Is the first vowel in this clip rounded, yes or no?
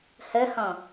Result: no